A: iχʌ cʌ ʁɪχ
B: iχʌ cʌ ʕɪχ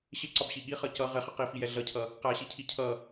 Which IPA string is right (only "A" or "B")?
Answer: A